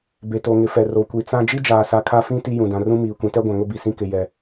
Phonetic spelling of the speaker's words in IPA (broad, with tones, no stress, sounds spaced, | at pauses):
b e˨ t o˨ ŋ ɪ˨ f ɛ˨ r o˨ kʷ i˨ t͡s ã˦ d͡ʒ i˦ d͡ʒ aː˨ s a˨ kʰ a˦ f ĩ˦ t i˦ j ũ˨ d ã˨ r ũ˦ m iː˨ kʷ ĩ˨ t ɛ˦ ɡʷ ã˨ ŋ ʊ˦ b i˨ s ĩ˦ k ɪ˨ j ɛ˨